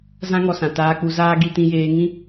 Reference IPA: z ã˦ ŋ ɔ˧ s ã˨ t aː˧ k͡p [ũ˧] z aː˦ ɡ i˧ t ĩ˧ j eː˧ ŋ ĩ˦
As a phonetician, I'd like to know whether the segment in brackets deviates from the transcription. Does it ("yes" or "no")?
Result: yes